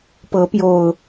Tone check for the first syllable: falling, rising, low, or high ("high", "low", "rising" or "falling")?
rising